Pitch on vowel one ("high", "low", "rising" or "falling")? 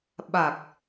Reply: low